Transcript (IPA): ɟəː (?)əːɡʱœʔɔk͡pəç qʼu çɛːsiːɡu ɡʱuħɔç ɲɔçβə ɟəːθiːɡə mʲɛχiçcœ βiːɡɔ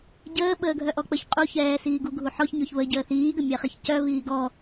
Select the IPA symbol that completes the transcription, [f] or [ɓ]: ɓ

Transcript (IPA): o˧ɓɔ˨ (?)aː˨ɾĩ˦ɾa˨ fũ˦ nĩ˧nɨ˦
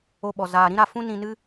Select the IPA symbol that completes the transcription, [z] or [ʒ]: z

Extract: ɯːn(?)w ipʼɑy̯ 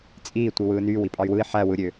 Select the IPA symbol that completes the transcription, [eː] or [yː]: yː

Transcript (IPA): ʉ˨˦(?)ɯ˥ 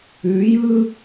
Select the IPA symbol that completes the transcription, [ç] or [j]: j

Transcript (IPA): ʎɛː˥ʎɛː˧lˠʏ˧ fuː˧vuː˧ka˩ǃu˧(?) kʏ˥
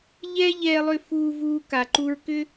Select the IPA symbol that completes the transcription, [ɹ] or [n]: ɹ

